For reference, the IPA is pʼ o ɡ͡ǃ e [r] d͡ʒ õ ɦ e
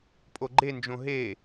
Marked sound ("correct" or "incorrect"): incorrect